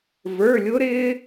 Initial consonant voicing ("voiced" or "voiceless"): voiced